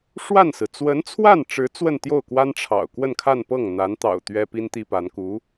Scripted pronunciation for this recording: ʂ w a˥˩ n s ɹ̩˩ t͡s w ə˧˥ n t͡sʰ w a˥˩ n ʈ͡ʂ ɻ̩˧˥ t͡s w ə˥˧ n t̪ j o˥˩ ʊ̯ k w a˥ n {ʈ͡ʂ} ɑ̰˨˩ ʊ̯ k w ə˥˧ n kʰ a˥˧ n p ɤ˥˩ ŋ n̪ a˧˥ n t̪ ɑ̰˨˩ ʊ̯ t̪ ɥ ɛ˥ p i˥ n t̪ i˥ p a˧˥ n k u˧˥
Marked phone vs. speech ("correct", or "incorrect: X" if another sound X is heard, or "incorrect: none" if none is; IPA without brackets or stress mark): incorrect: ʈ͡ʂʰ